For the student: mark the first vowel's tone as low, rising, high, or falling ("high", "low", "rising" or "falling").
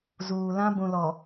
low